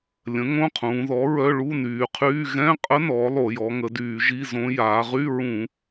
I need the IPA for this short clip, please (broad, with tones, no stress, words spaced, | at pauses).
lʲə̃˩˥ ŋõ˧˥˧qʰũː˩˧ðɔ˩˥ɹœ˧˥˧ ɭu˧˥˧nyː˩˧qʰyː˧˥˧ ɣɛ̃˧˥˧qʼə˧˥ nɔː˩˥lˠo˧˩˧ jɔ˩˧ŋə˩˧ dyː˧˩˧ʒi˧˥˧zõ˧˥ jaː˩˧ʁy˧˥˧ ɹũ˧˩˧